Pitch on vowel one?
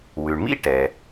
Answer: low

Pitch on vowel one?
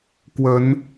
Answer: rising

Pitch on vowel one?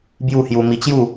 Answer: falling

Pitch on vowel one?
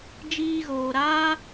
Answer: high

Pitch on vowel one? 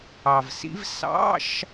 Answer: low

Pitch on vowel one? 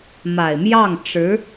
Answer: low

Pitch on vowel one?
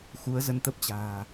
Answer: rising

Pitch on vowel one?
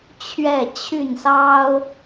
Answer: falling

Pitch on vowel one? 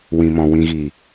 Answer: low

